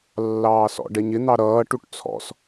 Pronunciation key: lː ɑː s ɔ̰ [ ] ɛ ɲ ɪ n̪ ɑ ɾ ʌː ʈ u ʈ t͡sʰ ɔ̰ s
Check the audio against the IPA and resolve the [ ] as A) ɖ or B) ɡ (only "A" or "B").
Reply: A